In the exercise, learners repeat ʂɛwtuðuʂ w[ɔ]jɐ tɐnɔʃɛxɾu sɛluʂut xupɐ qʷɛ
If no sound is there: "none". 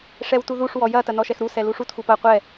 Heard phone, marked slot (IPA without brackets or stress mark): ɔ